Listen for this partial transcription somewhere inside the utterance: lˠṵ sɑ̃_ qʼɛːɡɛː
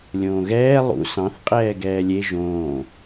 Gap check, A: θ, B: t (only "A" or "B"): A